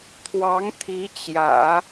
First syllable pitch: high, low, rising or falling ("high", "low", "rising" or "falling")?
rising